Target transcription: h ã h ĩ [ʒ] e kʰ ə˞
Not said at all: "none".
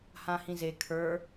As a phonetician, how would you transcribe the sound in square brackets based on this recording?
z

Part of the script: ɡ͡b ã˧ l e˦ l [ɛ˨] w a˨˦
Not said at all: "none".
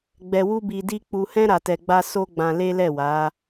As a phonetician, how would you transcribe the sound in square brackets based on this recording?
ɛ˦˨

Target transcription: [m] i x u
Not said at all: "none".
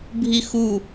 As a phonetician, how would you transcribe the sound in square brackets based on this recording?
bʱ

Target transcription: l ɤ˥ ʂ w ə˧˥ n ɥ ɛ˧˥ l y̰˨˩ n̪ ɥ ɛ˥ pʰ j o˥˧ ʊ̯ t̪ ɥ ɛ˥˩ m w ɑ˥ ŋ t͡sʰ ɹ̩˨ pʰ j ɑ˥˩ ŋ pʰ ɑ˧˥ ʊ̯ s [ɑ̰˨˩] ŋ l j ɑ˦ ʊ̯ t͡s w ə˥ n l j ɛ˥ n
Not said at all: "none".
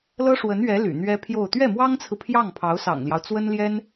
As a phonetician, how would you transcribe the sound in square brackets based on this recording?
ɑ̰˨˩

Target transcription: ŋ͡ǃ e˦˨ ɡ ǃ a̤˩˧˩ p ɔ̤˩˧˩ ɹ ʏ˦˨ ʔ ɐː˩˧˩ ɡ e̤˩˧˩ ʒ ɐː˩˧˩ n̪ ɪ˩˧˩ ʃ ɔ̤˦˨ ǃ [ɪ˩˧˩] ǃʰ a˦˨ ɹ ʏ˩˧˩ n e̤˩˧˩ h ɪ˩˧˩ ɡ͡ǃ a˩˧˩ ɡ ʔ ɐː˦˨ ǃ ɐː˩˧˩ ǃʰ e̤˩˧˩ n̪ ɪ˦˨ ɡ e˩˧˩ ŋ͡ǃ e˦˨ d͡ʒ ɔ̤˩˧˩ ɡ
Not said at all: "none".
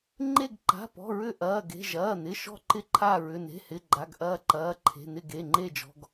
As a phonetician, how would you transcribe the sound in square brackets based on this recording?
ɪ˦˨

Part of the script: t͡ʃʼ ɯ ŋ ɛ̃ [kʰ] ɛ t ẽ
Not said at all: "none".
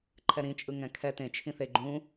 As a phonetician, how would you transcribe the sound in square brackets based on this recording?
kʰ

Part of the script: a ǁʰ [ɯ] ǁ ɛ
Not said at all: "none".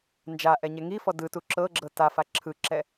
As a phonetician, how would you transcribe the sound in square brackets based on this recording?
ɯ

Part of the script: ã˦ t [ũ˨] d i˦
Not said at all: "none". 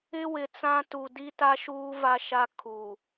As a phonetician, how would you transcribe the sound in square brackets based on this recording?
u˨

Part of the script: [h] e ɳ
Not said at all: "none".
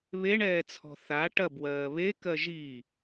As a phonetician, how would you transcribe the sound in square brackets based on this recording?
β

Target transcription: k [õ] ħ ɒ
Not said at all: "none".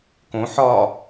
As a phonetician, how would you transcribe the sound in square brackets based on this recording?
õ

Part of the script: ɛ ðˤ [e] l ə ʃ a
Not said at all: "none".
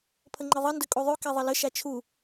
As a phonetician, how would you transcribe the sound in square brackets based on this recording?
ɘ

